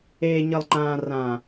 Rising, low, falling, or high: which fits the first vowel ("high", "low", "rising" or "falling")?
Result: low